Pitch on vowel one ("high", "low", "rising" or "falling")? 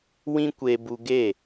high